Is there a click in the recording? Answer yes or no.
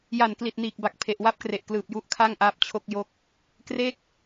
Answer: no